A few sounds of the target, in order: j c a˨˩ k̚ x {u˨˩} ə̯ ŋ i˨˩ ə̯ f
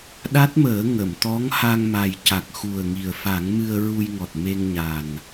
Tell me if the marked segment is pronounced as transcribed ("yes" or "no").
yes